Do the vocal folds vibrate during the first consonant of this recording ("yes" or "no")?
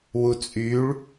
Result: yes